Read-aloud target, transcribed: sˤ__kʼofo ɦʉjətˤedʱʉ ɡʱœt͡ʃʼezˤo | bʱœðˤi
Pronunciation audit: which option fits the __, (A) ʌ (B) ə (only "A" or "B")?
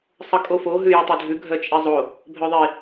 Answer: B